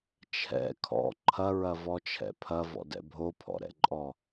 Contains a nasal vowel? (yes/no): no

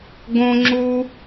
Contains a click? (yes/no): yes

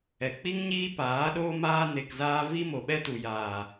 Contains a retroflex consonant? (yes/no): no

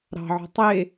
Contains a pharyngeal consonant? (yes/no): yes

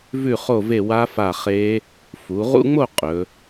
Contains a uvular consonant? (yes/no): yes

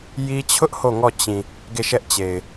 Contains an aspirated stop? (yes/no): yes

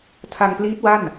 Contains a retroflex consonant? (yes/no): no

